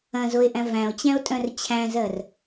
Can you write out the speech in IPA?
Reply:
ɐ̃ z o e̯ ʔ æ̃ v æ̃ o̯ t͡ɕ æ̃ o̯ tʼ œ̃ r t͡ɕʰ æ̃ z ɜ r

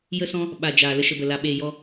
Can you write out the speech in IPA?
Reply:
j ə˦ s ɔ̃˦ | ɓ a˨ d͡ʒ aː˨ l ə˧ ʃ ə˧ b ə˨ l a˧ ɓ eː˧ j ɔ˦

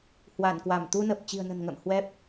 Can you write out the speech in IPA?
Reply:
h w a˧˩ n k w a˧˩ m t̪ u˧ n ə˨˩ p̚ t͡ɕ i̤˨˩ ə̯ n ə̤˨˩ n ŋ ə̰ː˧˨ m h w ɛ˦˥ p̚

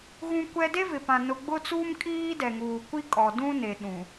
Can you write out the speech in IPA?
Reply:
ɣ ũ˦ kʷ ɛ˦ d e˦ v ɪ˨ p ã˨ n ʊ˨ ɡ͡b ʊ˦ t͡s uː˦ m kʼ iː˦ d ɛ˨ ŋ uː˨ kʷ i˦ kʼ ɔ˨ d ũ˦ n e˨ ɗ ũ˨

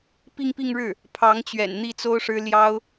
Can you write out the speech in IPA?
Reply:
p i˥˧ ŋ p i˥˧ ŋ ɻ ɻ̩˥˩ | pʰ ɑ˧˥ ŋ t͡ɕ ɥ ɛ̰˨˩ n n̪ i˥˩ t͡s o˥ ʊ̯ ʂ ɻ̩˥ l j ɑ˥ ʊ̯

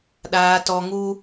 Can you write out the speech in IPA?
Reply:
ɗ aː˦ t ɔ˦ ŋ u˦

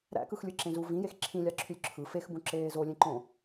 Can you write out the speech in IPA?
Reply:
ɾ æ̰ k ɯ x lʲ ɯ ǁ ẽ z u v ĩ j e x ǁʰ ĩ lʲ ɑ ǁʰ y lʲ ǁʰ ɯ f e x b ũ ǁ eː z o lʲ ẽ ǃ õ

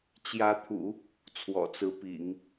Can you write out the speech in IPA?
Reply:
t͡ɕ j ä˧˥ t̪ʰ ṵ˨˩˦ | t͡sʰ w ɔ̰˨˩ t͡s ɹ̩˧˥ p ḭ˨˩˦ ŋ

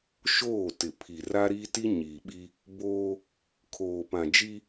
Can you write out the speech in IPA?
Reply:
ʃ oː˦˨ t ɪ˨ pʰ i˨ r a˦ ɾ i˦ t i˦ ɲ iː˨ ɓ i˦ | b oː˦ | kʰ oː˨ p ã˨ d͡ʒ i˦

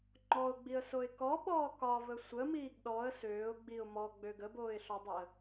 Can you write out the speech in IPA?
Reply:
ŋ͡ǃ ɔ ʊ̯ ɡ͡b i ə̯ s o ɪ̯ k ɔ ɓ ɔː k ɒ v ə sʷ ə m iː ɡ ɗ ɔ ə̯ s øː ʊ̯ ɡ͡b i ʊ̯ m ɔ ɡ͡b ø ɡ ə b oː ɪ̯ ɬ ɒ dˤ ɛ ə̯

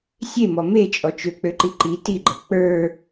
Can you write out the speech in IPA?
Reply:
sʲ e m ɔ m e t͡ʃʼ ɔ t͡ʃ ø k͡p ø ǃ i ǃ i t i ɡ͡ǃ ɤ k͡p ə˞

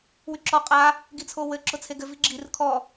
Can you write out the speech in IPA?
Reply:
w y ǁ ɔ qʼ a | ɡ i t͡sʰ o w ɘ ǁ ʊ t͡sʰ e ɡ ɘ v i ɡ͡ǁ i r kʰ ɔ

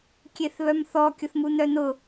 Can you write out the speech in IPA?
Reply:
kʲ e θ β œ m θ ɔ kʲ ʊ θ m u n̪ œ n̪ ʊ

